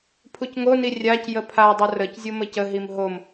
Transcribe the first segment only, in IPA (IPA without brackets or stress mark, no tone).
pʰ